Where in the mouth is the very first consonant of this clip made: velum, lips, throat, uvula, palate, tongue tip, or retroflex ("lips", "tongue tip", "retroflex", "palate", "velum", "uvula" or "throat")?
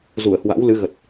tongue tip